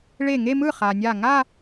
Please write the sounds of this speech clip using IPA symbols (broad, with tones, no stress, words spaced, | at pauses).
ɭe˧˩ŋe˥˧mɯ˥˩ χa˩nʲa˧˩ ŋa˥˧